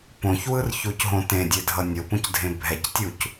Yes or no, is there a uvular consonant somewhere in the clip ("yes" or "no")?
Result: no